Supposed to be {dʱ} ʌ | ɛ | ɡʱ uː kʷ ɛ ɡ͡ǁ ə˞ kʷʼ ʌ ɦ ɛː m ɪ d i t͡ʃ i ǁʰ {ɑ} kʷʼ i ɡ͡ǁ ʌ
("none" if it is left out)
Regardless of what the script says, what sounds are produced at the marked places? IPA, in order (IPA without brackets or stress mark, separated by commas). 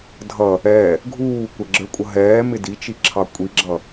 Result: dʱ, ɑ